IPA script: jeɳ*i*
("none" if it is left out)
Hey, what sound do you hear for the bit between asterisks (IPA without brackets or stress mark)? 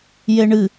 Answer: ɨ